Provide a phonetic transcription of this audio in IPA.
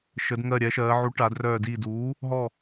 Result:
ʃ ə˩˧ d ŋ ɜ˧˩ ɾʲ ɛ˩˧ ʃ ɜː˩˧ ʕ u˩˥ ʈ a˩˧ d r œː˧˩ d iː˧˩ d uː˩˥ | ɦ ɔ˧˩

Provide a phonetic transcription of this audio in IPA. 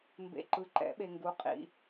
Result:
m b ḛ˨ ǃ ɯ˩˥ ǃ ɛ̰˩˥ ɓ e˨ ŋ ɡ u˩˥ qʼ ḭ˨

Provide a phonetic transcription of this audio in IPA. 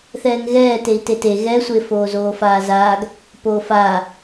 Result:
θ ɛː ŋ ɣ ɛː t e i̯ t e t e ɣ ɛ sʷ e f oː z oː f aː z aː ɡ | p oː f aː

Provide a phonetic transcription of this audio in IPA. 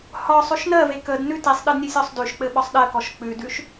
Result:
h ɒ sˤ ʉ ʃ n ɜ v e k ə d n ʉ t i sˤ ɗ ɘ d nʲ e sʲ ɔ sˤ d ʉ ʃ k͡p ɘ ɓ ɒ sˤ ɗ ɜ k ɔ ʃ k͡p ʉ d ʉ ʃ

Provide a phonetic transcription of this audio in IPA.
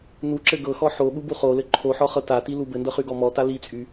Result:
n u ǁ ɘ ɡ ɤ x ɔ ħ o ɠ u b u χ o l ɘ ǃʰ o ħ ɔ χ ɤ t a t i l u b ɘ n d ɤ χ y ɡ ɔ m ɔ t a l i t͡sʼ y

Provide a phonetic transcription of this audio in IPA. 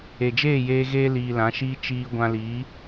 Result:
e˨ d͡ʒ eː˦˨ j eː˧ ɣ eː˧ l iː˨ l ã˨˦ ʃ iː˦ t͡ʃ iː˧ ɡʷ ã˧ l iː˨˦

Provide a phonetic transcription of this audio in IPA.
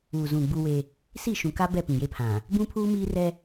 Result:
uː˨ z ũ˨ ɡ͡b u˦ w e˦ | s i˦˨ ʃ ũ˨ k a˦ b ɛ˦˨ p ĩ˨ j e˦ pʰ ã˨ | b ũ˦ pʰ uː˦ m iː˦ r ɛ˦

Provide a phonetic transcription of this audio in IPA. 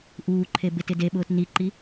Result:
ʔ uː ǃʰ e b ɪ t ɪ d e ɓ ʊː t n i ǃ i

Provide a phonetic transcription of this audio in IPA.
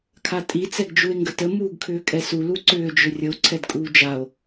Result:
kʰ a tʼ i t͡s ɛ ɡ d͡ʒ u e̯ ŋ ɡ ə t ə m uː ɡ kʰ ʏː kʼ ɛ s u l u ǀ ʏː d͡ʒ ʏ rʲ ə o̯ ǀʰ ɛ d kʼ uː d͡ʒ a o̯

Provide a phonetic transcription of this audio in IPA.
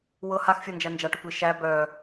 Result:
w ɤ h a x fʲ ɤ n d͡ʒ æ n d͡ʒ a ʈ œ kʷ i ʃ æ b œ

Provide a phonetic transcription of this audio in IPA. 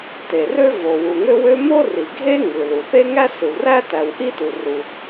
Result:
t e˩ r ø˥ v o˩ w u˩ ŋ ø˥ w ø˥ m o˥ r i˩ ɡʱ e˥ ŋ ɯ˩ l u˩ θ e˥ ŋ æ˥ s ɯ˩ w r æ˥ t æ˩ w ʔ i˥ t u˩ r u˩

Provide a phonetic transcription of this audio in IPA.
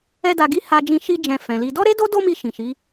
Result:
ɛ˦ d a˧ ɡ i˦ h a˧ d͡ʒ ĩ˧ ʃ i˧ d͡ʒ ɛ̃˨ f ɛ̃˨ l i˧ d ɔ˦ ɾ e˦ d o˦ d o˦ m i˧ ʃ ĩ˨ ʃ i˨˦

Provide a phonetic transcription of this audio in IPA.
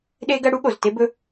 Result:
ɗ e˦ ɡ ɐ˦ ɽ u˦ ɠ o˨ z t e˦ b ɵ˦

